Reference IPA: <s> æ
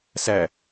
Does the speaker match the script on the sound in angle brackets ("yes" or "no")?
yes